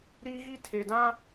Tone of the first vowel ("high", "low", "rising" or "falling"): high